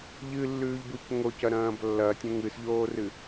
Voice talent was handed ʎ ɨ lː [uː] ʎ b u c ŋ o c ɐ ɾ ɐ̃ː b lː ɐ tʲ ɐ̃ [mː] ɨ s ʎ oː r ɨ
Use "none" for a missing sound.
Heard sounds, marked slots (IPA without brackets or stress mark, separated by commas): ʉː, ŋ